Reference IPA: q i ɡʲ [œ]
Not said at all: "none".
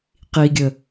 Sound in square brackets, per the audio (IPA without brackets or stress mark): ə